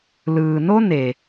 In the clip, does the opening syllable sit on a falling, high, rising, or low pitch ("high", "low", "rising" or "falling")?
low